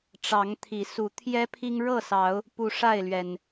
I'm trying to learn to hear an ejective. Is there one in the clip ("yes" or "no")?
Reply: no